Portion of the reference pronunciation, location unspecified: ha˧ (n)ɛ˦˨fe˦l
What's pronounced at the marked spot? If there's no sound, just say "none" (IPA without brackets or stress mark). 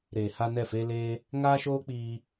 n